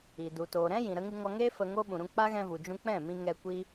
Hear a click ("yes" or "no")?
no